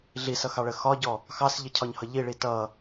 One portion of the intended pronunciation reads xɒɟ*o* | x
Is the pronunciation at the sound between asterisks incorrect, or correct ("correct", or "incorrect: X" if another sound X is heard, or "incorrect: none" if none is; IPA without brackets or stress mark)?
incorrect: ɔ